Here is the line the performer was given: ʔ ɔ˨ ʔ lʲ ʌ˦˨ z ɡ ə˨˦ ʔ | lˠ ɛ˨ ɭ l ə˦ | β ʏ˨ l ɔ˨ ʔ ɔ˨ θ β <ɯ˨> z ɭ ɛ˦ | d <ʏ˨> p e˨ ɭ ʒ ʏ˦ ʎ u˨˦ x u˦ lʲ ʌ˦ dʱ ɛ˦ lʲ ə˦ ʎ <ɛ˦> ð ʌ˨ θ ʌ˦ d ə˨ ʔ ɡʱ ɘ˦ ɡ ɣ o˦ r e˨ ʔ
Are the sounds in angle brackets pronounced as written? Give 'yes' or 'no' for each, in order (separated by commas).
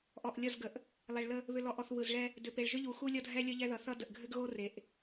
yes, yes, yes